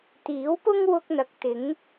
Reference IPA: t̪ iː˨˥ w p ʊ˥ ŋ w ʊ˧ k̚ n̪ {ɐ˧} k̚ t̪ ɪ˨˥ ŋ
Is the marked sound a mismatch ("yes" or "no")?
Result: yes